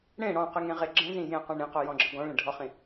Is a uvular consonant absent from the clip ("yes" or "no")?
no